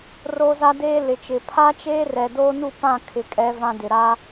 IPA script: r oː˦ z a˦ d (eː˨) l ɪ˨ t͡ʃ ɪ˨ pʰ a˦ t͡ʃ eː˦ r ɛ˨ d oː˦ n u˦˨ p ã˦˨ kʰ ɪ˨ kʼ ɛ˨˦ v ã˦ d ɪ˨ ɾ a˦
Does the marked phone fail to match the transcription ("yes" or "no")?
yes